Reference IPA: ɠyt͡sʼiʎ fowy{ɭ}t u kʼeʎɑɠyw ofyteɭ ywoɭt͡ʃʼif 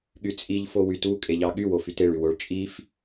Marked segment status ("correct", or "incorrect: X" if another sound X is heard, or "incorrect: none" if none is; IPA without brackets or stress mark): incorrect: none